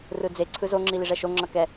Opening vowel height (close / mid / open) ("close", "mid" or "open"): close